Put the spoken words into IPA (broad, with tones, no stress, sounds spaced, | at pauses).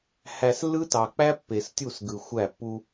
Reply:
h æ˨ s lː ɯ˦ t ɑ˨ k͡p æ˦ pː e˨ s tʲ u˦˨ s ɡ ɯ˨ xʷ æ˦˨ pː u˦